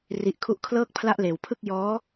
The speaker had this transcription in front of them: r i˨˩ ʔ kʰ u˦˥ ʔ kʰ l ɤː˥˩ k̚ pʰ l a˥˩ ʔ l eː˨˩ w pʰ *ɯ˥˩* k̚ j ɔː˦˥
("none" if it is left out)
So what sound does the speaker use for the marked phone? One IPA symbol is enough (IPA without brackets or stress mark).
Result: ɯ˥˩